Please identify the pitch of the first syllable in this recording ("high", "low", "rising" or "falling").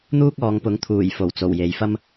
high